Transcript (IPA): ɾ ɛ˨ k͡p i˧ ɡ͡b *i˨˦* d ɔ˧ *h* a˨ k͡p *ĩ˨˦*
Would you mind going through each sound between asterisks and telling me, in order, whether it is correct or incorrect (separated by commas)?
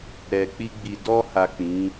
incorrect, correct, correct